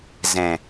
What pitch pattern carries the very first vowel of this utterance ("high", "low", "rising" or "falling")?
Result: low